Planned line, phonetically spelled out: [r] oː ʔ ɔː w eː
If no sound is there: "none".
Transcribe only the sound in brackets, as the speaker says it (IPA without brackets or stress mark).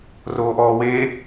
r